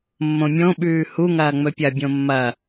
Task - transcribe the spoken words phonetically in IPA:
mːõmʲõɓʉː huŋɐː ŋ͡mɵpʲɐbʲõ mːɐ

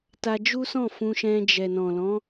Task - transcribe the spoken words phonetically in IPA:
ta˧d͡ʒu˦sɔ̃˦˨ fũ˧ʃɛ̃˧d͡ʒɛ˨ nɔ̃˨lɔ̃˨˦

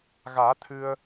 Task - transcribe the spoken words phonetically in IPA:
ɣaː˨˩˦ t̪ʰɨ˧ə̯

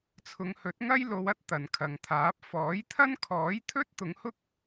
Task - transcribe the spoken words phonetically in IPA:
t͡sʰʊ˨˧ŋhɵ˨˥t̚ŋɐ˥j lo˨˧wɐ˥t̚ t̪ɐ˨nkʰɐ˨ŋt̪ʰaː˨˥p̚ fɔː˨˥jt̪ʰɐ˥n kʰɔː˨˥jt̪ʰɵ˥t̚ t̪ʊ˨˧ŋhʊ˥k̚

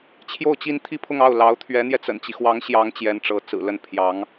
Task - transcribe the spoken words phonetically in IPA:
t͡ɕʰjo˥˩ʊ̯t͡ɕi˥n t̪ʰi˥˧pʰʊ˥˧ŋ ɑ˥˩ʊ̯ lɑ˧˥ʊ̯ t̪ʰɥɛ˧˥n̪jɛ˧t͡sə̰˨˩nt͡ɕi˦ xwɑ˧˥ŋɕjɑ˧˥ŋ t͡ɕjɛ˧˥nʈ͡ʂɤ˧˥ t͡sɹ̩˨˩lə˥˩n pʰjɑ˧˥ŋ

